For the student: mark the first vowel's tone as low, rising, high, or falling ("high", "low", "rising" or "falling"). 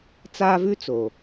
high